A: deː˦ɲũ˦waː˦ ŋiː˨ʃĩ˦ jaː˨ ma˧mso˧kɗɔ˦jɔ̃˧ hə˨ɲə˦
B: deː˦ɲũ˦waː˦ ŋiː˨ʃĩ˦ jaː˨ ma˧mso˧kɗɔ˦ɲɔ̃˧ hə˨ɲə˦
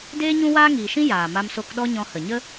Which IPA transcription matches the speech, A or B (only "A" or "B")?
B